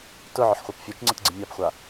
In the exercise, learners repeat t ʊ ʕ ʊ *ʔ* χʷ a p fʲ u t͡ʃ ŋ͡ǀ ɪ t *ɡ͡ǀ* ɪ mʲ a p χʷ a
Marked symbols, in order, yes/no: no, yes

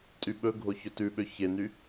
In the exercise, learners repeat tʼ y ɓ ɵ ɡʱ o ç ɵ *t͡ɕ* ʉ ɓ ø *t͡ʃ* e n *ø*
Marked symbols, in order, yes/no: no, no, no

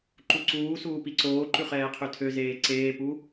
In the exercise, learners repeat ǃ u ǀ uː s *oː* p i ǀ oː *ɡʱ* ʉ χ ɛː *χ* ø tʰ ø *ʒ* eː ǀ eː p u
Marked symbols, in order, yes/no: no, no, no, no

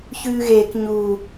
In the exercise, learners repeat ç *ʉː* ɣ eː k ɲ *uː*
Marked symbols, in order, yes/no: yes, yes

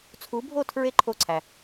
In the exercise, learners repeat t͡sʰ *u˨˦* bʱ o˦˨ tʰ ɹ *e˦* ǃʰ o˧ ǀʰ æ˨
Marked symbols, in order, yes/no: yes, yes

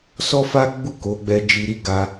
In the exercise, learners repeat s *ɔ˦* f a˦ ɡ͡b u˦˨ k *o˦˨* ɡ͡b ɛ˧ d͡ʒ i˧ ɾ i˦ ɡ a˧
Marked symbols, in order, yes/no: yes, no

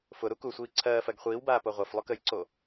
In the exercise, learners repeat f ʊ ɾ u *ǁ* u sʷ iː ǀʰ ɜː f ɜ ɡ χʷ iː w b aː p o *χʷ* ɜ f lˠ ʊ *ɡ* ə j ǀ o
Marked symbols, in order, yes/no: no, no, no

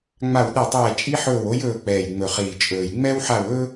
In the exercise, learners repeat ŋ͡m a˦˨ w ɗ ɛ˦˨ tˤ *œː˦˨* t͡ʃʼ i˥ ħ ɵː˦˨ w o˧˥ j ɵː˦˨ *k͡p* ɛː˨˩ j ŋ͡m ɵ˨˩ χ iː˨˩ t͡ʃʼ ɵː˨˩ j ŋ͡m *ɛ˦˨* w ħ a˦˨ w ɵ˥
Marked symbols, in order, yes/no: no, yes, no

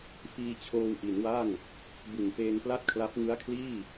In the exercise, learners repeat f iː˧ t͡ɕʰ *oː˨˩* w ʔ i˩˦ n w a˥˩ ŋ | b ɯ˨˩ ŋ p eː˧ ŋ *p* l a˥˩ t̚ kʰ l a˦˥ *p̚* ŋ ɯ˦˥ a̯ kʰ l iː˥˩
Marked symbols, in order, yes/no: no, yes, yes

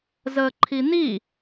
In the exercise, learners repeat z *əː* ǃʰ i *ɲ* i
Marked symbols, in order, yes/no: yes, no

